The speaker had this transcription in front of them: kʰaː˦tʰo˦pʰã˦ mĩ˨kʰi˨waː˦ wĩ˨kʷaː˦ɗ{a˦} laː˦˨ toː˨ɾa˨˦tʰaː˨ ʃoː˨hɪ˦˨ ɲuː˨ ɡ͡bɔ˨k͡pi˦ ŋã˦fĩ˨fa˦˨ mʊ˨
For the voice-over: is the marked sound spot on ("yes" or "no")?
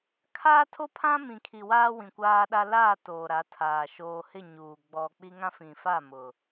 yes